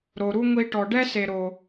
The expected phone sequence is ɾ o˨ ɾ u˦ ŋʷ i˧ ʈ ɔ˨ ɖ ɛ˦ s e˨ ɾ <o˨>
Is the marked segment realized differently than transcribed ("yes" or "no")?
no